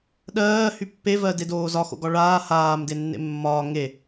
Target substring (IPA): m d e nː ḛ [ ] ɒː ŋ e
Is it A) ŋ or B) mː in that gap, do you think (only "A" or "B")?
B